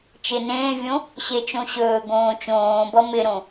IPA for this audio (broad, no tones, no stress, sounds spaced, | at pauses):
t͡ʃ ɪ n ẽː vʲ õ | ɕ e t͡ʃ õ ɕ ɵː ɡ õː t͡ʃ õː b ʌ m ɪ ɾ õ